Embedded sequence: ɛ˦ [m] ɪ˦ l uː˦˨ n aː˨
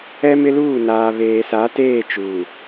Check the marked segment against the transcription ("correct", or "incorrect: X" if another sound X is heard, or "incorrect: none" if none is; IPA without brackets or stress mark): correct